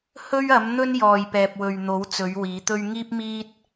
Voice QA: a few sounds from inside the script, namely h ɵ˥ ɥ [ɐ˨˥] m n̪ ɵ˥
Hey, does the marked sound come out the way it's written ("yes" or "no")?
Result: yes